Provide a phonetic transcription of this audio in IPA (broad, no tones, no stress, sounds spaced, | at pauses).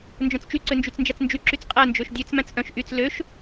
n d͡ʒ œ̃ t͡s t͡ʃ y ǀ ø n d͡ʒ y t͡s n d͡ʒ æ t͡s n d͡ʒ y ǁ y t͡s qʼ æ n d͡ʒ ø ʃ dʲ ø t͡s m æ̃ t͡s ʔ œ̃ ʃ ʔ y t͡s l ø ʃ